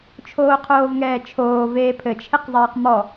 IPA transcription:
t͡ʃʰ oː qʰ oː v ŋ ɛː t͡ʃʰ oː v eː pʰ ɘ t͡ʃʰ e q zˤ eː q m ɔ

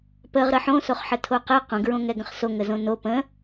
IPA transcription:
p ə ʁ ɾ ə ħ õ s o χ ħ ə tʰ o q ɛ q õ ɡ ɹ õ ŋ ɛ ɡ ə̃ χ s o ŋ ə z õ n o p ə̃

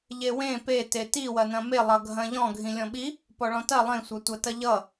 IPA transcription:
ʎ e w ẽ p e t e t i w ɐ n ɐ̃ m e lˠ ʌ ɡʱ ɐ̃ ʎ ɔ̃ ɡʱ ĩ lʲ ɔ̃ ɓ i | p ɔ ɭ ɔ̃ t ɐ lˠ ẽ sʷ ɐ tʷ ɐ t ɐ ʎ ʌ

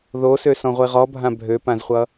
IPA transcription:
ð o s ø s ɔ̃ ʁʷ i ʁ ɔ bʱ ã bʱ ø p ã z χʷ ʌ

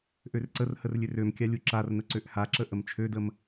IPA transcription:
ʔ ø r ǀ ə r h ə r lʲ ø r ø m kʲ a lʲ u ǁ a r n ə ǀ ø ʔ h a ǁ ə ʔ ə m t͡ʃʰ ø d ə m

